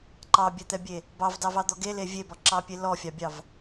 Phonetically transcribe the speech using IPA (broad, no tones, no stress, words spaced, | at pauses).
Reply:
ǃɑbʲɛt̪ɛbʲe | bɑvdɑvɑd̪ɔ ɡele vʲebɔǁɑpʲe lɔfʲɑbʲɑv